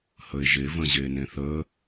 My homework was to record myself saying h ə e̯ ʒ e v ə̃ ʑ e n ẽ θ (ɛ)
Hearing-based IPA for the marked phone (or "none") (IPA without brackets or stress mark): ə